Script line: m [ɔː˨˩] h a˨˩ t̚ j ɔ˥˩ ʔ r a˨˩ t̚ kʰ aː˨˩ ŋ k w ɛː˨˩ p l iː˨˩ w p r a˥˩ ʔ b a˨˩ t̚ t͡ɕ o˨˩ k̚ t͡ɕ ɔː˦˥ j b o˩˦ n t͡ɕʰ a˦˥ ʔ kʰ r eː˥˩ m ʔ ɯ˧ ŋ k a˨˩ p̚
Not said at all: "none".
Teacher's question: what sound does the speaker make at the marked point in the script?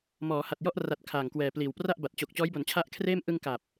ɔː˩˦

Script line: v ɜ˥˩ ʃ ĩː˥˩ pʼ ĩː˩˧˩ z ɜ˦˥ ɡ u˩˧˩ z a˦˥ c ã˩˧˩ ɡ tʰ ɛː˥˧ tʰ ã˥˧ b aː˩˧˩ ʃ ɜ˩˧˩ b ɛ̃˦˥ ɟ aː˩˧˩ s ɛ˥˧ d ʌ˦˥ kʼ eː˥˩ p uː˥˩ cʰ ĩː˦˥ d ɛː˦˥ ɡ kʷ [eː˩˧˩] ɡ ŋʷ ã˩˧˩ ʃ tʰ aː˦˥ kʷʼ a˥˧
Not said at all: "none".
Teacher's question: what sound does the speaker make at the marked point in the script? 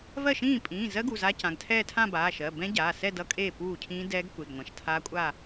e˩˧˩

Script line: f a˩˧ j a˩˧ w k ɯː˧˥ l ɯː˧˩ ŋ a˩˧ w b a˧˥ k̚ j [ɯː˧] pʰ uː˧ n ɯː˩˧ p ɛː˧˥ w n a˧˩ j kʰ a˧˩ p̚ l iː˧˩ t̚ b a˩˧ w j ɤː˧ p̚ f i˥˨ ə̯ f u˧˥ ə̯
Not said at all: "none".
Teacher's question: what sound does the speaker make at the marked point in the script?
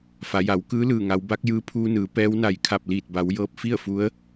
ɯː˧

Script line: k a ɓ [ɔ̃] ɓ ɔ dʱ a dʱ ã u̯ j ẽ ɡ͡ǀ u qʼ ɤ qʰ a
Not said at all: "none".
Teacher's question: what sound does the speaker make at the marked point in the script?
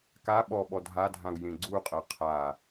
ɔ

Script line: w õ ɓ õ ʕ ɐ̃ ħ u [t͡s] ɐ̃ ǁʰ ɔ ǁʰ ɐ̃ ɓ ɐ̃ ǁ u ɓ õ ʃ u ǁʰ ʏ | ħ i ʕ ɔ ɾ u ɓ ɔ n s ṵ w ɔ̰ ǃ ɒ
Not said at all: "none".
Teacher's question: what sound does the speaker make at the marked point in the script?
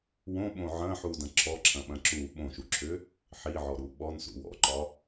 d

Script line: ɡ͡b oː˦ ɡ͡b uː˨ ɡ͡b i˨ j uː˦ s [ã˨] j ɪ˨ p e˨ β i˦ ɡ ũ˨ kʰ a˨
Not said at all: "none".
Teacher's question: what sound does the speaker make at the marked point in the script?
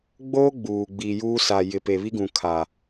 a˨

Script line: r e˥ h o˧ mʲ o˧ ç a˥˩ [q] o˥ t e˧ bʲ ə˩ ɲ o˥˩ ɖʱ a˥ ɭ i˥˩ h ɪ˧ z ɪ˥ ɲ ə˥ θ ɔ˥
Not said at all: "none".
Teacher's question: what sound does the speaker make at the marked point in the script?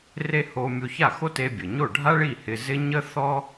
x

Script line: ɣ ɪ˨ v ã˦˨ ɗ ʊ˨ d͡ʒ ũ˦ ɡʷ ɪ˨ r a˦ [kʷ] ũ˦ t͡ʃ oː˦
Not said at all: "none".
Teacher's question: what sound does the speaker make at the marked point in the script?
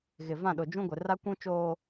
kʷ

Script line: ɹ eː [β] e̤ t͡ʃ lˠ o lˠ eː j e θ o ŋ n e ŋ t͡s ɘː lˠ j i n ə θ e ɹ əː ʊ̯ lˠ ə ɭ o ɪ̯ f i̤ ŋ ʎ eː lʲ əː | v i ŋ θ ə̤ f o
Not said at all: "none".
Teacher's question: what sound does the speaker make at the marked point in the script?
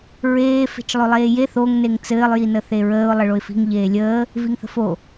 f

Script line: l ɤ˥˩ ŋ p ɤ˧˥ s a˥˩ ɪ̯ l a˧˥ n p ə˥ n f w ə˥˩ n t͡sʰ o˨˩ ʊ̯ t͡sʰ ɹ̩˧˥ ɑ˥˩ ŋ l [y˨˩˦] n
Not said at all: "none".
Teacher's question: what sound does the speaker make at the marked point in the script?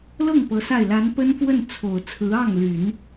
y˨˩˦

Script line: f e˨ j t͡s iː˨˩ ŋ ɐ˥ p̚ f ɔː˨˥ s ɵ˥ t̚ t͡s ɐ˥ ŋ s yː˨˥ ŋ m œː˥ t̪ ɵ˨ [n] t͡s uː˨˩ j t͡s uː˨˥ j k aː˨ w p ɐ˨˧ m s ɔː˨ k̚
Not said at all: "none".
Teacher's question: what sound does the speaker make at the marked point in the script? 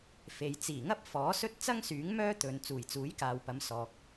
n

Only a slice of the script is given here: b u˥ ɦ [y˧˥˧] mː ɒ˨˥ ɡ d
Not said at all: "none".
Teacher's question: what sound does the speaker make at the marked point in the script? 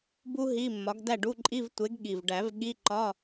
i˧˥˧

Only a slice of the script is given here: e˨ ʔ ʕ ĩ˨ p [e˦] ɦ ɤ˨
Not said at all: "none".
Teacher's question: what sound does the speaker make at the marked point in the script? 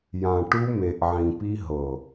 i˦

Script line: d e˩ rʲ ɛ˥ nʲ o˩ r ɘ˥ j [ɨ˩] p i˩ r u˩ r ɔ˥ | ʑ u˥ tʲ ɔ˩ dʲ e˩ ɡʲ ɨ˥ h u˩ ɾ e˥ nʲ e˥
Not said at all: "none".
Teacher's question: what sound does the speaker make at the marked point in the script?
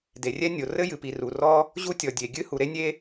ɨ˩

